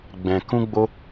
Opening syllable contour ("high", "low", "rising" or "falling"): low